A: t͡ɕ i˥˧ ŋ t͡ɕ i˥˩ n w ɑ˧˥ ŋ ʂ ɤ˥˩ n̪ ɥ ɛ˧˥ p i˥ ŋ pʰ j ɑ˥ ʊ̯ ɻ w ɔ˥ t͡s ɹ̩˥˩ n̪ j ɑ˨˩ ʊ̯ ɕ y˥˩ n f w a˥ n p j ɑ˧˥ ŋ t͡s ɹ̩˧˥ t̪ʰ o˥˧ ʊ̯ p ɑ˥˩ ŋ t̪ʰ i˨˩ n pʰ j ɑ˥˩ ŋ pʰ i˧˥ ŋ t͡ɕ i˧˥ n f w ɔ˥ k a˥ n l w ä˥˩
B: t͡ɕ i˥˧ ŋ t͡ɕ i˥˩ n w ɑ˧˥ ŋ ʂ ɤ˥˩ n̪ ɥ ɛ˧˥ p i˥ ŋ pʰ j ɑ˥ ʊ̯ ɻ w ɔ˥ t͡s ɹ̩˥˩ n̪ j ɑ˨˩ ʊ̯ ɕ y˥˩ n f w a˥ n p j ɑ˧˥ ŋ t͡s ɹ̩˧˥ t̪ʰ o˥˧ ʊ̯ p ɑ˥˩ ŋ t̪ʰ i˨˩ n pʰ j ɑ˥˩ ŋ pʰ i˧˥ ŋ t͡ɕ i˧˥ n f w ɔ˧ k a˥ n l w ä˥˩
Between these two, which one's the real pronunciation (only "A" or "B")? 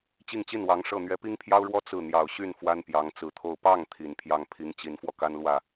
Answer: B